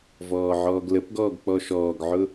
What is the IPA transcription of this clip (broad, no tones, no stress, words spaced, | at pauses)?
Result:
vɔːʕɔːɡləpɡɔːɡ k͡pɔʃɔːɡʕʊ